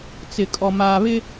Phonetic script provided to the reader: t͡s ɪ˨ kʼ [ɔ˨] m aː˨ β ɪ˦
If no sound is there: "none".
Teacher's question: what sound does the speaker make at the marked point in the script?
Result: ɔ˨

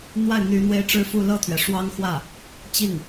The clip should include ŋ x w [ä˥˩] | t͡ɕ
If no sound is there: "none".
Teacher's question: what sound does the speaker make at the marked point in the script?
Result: ä˥˩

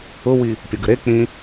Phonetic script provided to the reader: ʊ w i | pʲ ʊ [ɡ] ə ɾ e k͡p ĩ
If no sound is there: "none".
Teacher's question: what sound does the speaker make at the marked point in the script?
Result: ɡ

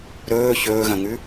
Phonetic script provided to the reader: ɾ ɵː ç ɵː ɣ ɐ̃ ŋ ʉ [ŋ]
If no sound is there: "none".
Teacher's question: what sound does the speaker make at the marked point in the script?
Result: none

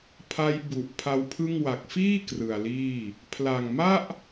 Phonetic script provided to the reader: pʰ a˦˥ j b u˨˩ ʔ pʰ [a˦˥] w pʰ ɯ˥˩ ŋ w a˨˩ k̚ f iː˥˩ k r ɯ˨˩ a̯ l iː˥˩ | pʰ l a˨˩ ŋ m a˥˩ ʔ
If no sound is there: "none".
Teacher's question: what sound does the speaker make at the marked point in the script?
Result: a˦˥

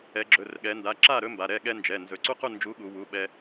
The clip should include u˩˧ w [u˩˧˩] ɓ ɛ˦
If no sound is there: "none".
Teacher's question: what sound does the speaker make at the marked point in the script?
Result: u˩˧˩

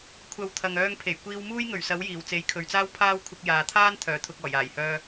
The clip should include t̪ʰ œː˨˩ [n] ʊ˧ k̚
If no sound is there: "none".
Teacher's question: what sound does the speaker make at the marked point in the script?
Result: t̪ʰ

